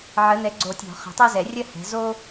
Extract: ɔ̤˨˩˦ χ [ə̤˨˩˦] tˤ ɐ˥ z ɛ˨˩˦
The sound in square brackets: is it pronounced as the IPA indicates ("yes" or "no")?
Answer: yes